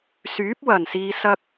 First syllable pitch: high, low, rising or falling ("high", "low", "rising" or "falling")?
rising